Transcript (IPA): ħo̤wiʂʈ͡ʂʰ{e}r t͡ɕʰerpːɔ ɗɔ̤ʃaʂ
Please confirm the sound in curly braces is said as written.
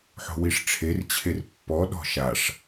yes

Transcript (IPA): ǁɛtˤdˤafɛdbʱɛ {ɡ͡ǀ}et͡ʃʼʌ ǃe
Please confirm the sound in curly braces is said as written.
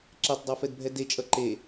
no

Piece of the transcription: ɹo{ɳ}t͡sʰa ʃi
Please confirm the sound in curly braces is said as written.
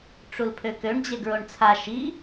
yes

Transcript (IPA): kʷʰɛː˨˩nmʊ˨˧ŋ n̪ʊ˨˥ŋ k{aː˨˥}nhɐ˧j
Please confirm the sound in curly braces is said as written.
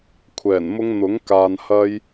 no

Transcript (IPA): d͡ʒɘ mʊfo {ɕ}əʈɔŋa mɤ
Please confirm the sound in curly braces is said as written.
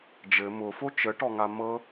no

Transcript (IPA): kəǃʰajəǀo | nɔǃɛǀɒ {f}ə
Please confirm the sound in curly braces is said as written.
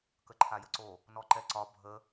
no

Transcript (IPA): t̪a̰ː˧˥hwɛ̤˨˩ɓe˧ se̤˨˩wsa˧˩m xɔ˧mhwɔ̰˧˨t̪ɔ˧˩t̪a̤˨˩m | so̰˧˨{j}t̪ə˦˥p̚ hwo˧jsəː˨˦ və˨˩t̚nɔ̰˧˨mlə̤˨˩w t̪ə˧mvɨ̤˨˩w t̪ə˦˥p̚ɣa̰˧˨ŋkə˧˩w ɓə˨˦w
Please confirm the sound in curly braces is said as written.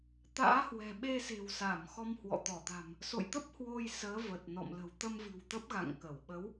yes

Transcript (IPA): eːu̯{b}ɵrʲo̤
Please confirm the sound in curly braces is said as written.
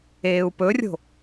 no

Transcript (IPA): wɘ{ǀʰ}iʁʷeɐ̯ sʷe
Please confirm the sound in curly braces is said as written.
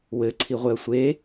yes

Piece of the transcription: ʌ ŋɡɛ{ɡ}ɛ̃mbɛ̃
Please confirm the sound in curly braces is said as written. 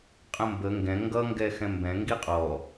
no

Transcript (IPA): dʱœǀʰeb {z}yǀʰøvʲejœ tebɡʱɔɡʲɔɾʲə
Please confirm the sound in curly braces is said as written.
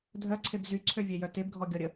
yes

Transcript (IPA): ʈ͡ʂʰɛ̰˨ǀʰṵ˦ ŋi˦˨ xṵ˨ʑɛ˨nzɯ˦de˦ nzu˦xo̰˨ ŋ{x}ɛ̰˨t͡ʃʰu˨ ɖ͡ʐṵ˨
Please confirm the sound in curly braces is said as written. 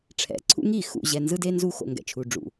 no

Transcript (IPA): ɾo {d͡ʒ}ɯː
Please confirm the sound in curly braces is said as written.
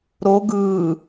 no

